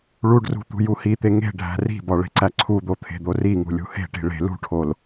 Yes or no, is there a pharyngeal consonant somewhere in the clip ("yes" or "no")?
no